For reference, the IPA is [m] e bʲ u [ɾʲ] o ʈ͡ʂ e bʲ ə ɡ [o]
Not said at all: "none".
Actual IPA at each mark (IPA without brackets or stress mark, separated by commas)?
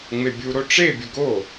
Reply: ŋ͡m, ɾ, o